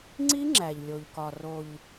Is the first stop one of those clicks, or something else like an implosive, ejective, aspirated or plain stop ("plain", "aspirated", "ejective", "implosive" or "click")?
click